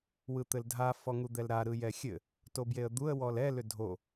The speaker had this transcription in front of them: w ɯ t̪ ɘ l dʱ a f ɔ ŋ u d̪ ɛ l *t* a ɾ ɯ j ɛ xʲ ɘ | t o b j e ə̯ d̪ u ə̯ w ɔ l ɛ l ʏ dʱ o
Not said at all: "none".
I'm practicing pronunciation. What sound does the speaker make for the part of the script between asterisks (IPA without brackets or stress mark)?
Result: ɾ